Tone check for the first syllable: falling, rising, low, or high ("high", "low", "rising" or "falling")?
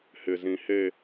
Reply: low